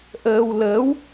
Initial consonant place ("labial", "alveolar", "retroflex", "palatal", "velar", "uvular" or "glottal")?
glottal